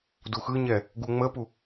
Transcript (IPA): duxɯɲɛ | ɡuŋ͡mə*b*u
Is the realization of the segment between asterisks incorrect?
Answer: yes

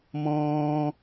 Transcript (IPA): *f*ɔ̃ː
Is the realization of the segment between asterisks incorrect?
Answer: yes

